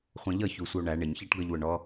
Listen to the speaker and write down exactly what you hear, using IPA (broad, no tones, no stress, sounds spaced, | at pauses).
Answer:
χʷ ɛ̃ ʎ ʌ ç u sʷ ə o̯ ɳ æ ɳ ɪ ɲ ç æ ʈ ɡ ʌ ʎ w ʊ ɳ ɔ